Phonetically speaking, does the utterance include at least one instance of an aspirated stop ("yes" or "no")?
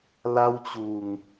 no